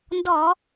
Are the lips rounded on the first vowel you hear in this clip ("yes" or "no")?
yes